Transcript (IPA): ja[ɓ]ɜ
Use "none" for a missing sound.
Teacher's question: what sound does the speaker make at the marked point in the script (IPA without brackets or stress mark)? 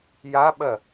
ɓ